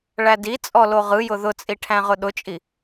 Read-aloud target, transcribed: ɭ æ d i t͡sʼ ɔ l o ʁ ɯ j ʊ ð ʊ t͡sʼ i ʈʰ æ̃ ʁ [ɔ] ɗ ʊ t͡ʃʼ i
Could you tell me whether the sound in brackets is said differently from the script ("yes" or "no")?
yes